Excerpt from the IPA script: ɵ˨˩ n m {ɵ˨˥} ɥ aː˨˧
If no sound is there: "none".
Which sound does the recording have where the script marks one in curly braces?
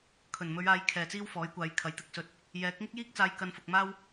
ɵ˨˧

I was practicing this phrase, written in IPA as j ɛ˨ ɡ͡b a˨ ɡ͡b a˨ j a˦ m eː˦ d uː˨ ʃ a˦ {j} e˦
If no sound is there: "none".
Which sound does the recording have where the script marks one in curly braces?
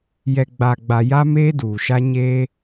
ɲ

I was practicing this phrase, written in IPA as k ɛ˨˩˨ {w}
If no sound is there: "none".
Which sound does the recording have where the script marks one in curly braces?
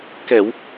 w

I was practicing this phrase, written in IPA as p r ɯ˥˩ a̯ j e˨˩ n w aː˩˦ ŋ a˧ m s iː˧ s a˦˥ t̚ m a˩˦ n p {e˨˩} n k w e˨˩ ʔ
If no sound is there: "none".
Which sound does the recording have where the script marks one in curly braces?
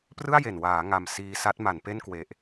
e˥˩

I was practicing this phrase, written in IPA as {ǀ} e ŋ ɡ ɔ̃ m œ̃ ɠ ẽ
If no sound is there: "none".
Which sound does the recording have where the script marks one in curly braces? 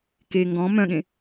k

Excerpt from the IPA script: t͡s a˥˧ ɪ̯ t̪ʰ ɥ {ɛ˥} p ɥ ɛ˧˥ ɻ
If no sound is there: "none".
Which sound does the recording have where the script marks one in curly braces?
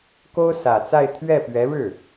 ɛ˥˩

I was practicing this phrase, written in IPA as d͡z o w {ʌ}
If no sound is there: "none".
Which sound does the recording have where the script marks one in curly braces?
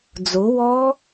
ɔ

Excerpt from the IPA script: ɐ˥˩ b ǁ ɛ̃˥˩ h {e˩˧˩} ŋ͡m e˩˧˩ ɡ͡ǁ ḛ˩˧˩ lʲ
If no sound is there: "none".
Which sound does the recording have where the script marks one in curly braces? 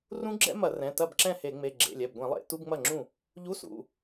e˧˩˧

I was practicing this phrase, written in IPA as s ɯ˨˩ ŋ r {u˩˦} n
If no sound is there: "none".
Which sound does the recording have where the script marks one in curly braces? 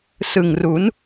u˩˦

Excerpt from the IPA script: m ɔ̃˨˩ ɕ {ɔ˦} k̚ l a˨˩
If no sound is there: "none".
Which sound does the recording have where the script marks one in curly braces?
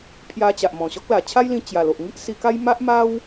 ɔ˦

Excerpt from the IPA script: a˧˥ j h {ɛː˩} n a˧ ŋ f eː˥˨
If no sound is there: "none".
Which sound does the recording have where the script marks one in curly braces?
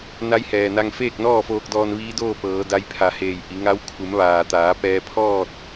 ɛː˩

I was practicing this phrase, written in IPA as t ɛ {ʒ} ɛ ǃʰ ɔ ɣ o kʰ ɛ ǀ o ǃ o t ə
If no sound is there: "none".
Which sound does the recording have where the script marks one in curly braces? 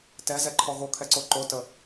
z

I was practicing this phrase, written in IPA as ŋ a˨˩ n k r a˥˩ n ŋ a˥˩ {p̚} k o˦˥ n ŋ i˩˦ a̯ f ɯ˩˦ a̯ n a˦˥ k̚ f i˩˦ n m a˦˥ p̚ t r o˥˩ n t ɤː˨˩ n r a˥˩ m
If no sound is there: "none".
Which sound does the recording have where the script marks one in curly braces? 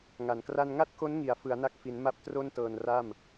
t̚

